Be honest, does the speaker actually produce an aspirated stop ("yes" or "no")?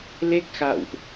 no